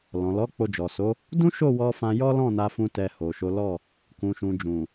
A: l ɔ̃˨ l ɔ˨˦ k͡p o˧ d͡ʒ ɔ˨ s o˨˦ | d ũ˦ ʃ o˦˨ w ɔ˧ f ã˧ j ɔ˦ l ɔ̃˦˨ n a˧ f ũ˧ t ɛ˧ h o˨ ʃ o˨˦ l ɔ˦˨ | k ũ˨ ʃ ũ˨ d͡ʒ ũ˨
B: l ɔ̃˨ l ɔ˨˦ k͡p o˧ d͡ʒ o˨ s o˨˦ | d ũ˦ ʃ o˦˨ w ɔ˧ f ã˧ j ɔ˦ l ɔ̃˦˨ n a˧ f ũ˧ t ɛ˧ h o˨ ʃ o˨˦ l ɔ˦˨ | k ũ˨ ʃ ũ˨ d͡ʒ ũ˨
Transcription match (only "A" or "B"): A